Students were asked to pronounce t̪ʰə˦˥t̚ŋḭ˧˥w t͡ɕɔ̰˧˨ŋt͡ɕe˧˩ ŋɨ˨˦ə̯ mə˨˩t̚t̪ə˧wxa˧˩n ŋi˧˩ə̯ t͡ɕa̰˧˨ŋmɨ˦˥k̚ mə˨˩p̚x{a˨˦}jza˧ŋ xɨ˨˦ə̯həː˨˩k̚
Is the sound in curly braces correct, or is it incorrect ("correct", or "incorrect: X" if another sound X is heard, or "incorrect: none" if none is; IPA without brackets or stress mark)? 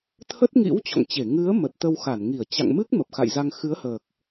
incorrect: a̰˧˨